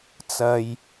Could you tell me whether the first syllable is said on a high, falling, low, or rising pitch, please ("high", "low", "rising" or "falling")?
low